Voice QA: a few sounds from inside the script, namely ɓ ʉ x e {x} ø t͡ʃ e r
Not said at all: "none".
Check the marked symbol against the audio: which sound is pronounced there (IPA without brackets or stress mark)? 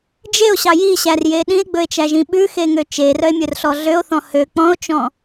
ŋ